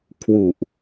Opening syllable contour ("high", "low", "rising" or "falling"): low